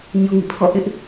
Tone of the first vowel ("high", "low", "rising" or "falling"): low